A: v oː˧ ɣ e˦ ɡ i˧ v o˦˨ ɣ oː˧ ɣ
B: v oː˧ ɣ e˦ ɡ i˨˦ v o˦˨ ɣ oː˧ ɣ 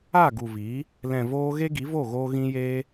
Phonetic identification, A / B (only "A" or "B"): B